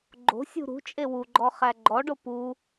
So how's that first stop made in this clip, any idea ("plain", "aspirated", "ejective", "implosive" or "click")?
click